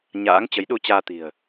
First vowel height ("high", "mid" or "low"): low